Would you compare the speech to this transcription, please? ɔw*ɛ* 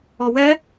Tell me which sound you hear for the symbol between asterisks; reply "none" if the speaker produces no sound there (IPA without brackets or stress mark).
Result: ɛ